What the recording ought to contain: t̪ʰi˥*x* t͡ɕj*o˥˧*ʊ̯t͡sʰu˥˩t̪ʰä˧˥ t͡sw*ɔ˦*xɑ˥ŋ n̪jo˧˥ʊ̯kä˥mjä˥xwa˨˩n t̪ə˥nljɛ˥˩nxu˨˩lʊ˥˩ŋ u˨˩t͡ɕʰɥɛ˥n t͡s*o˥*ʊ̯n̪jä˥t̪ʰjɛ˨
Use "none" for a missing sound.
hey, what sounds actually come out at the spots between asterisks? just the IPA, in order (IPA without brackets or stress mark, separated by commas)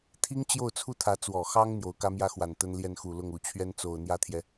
ŋ, o˥˧, ɔ˨˩, o˨˩